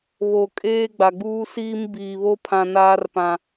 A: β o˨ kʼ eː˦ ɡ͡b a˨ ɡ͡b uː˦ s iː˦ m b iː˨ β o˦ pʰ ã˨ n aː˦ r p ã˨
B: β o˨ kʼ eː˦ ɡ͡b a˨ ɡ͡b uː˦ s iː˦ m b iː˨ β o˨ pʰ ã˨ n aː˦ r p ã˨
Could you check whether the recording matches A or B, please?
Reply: A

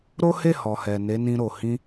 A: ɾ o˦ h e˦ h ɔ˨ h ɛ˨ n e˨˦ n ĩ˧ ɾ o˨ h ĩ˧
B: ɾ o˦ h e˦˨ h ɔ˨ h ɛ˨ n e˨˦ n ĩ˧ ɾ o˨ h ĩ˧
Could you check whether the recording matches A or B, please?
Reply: B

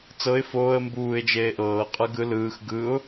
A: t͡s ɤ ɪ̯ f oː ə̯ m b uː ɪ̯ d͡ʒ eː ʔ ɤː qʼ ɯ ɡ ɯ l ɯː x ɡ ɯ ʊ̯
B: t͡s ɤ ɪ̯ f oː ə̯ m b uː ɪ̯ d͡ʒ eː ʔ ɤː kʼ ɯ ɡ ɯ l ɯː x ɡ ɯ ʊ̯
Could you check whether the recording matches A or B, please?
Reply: A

